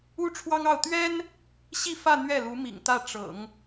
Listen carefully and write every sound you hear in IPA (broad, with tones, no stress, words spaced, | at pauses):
u˥ʈ͡ʂʰwɑ˥ŋɑ˥˩ʊ̯ t̪ɥɛ˥n | ɕi˥˧fä˥˧ n̪ɥɛ˥˩lu˧˥mḭ˨˩ŋt̪ä˥˩ ʈ͡ʂɤ̰˨˩˦ŋ